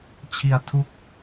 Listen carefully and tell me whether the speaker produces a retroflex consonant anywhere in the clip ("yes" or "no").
no